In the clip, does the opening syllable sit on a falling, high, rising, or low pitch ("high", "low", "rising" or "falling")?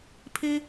high